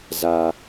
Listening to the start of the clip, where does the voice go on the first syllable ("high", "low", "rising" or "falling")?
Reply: high